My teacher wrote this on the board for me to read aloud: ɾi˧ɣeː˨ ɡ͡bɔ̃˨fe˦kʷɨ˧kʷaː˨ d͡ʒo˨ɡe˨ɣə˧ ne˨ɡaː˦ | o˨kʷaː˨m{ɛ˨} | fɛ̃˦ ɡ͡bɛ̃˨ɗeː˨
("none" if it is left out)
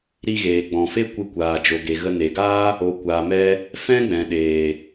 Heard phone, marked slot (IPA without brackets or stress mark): ɛ˧